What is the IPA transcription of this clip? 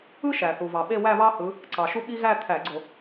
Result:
ɯ˥ʃæ˩θu˩ vɑ˩ɓe˥˧ wæ˥˧βɑ˥hɯ˨˦ | ǀɑ˩ʃu˥ɓi˥ ɣæ˥˧t̪ʰæ˧˩˧ɡ͡ǀo˧˩˧

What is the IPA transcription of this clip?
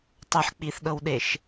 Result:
tˤɤħ k͡piθɗɤwɗeʃ

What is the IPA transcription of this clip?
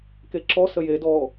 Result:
keǁɔ səjedɔː

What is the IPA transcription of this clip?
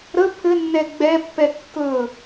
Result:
ɾə pʰɘnːɛ ɡ͡bɛpːɛ kːɵ

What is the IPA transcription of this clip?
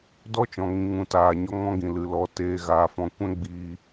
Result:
dɔ˦t͡ʃɔ̃˨ŋĩ˨ ŋũ˨taː˨ɲɔ˧ ŋɔ̃˦ɡĩ˨lɨ˨lɔ˨˦ teː˨ɣaː˨fɔ̃˨ kʷɛ̃˦ɡ͡biː˧

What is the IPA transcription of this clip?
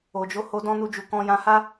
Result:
o˨d͡ʒo˨˦ho˧ dɔ̃˦nu˧d͡ʒu˨ kɔ̃˧jã˧ha˦

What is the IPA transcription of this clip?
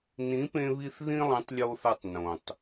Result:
nĩ˨˦pẽ˧βi˧θ ðĩ˦lˠĩ˨˦tˤlʲo˧θa˧tˤ nõ˨tˤ

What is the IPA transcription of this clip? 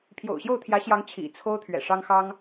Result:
pʰjo̰˨˩ʊ̯ɕjo˥˩ʊ̯t̪ʰjä˧˥ɕjɑ˧˥ŋ t͡ɕʰḭ˨˩ t͡sʰo˥ʊ̯ t̪ʰɥɛ̰˨˩ʂɑ˥ŋxɑ˥ŋ

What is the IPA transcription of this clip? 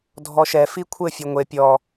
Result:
dʱɔʃɛ fikʷʰɘ fʲoŋʷe pʲɔ

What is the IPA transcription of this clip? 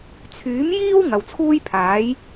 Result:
t͡sʰyː˨˥mjiː˥w ŋɐ˨wt͡sʰuː˥jpʰaː˨˥j

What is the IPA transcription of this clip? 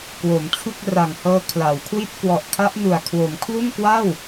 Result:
kwo˩˦mt͡ɕʰu˥˩k̚ ra˨˩ŋhɤː˧ kʰla˩˦wkʰwi˥˩t̚ kwɔ˨˩ʔkʰa˦˥ʔ nu˨˩a̯kʰwo˩˦mkʰlu˥˩n kwa˥˩w

